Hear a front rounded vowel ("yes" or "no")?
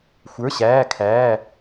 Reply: no